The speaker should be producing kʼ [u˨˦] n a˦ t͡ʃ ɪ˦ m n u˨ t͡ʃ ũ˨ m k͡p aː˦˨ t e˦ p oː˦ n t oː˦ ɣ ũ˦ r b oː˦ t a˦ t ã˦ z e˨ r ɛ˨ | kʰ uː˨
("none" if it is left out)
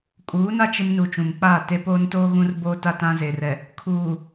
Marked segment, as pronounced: uː˨˦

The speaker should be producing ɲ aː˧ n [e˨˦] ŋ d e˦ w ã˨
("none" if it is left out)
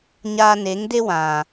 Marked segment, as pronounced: e˨˦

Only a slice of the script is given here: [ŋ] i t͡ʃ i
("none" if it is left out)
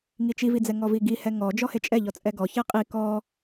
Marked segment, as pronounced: ŋ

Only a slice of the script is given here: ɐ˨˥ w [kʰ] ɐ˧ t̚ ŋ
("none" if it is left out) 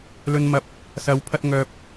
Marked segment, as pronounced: pʰ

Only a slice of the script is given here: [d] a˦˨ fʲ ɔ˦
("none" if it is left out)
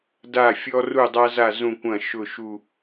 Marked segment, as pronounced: d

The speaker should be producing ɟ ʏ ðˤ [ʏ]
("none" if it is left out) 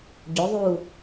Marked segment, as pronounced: u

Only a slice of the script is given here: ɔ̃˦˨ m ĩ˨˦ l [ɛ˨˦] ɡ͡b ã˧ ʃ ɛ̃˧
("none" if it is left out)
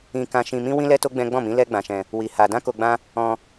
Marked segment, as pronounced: ɛ˦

